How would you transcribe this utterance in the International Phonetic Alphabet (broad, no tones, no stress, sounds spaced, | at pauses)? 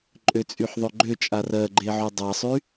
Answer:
ǃʼ ø t͡sʼ y ħ ðˤ ø ɡ͡ǃ ø t͡ʃʼ a r ɜ ɡ͡ǃ e ʕ y dˤ a sˤ y